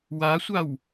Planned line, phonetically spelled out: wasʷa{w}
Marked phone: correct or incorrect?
correct